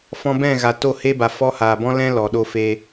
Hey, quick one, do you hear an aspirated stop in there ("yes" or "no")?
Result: no